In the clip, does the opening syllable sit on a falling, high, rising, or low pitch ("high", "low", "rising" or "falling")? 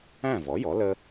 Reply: falling